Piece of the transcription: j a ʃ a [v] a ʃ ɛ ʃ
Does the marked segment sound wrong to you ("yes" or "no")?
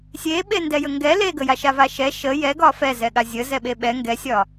no